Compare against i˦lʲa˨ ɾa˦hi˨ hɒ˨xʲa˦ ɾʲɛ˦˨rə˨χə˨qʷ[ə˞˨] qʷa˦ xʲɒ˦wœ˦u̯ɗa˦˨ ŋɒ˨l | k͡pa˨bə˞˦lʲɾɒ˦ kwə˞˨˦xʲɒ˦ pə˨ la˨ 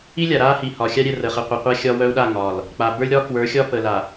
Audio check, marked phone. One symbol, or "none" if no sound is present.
ə˨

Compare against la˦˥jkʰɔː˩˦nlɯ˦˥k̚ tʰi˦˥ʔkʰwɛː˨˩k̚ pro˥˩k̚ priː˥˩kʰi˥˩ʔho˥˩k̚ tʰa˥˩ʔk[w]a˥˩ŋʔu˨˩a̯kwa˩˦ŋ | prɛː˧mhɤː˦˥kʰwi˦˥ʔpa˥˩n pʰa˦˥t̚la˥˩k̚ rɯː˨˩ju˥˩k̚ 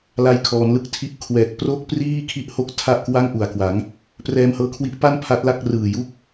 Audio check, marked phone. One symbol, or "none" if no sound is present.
w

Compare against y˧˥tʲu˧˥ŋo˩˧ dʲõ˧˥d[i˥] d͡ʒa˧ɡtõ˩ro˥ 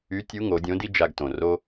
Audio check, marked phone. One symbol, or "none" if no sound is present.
i˥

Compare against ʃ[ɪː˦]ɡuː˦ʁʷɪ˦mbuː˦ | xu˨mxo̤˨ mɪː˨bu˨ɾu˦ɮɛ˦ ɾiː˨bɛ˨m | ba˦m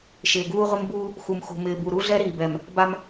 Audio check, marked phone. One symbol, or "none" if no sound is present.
ɪː˨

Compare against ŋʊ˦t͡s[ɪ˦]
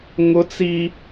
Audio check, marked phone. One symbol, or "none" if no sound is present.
i˦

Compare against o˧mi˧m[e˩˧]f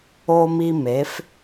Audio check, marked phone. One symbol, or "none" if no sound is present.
e˩˧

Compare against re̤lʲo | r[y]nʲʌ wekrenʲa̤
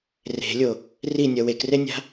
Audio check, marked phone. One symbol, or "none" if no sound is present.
i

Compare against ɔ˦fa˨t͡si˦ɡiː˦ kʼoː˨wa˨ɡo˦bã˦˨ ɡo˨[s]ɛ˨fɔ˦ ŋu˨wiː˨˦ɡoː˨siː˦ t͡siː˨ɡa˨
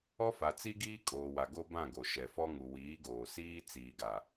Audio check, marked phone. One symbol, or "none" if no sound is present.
ʃ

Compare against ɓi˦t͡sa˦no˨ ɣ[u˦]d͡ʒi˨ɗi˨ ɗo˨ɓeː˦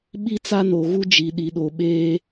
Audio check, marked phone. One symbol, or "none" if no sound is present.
u˦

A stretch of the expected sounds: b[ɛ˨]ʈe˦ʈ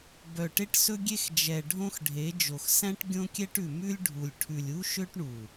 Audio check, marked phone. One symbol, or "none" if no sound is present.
œ˨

